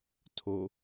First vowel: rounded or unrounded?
rounded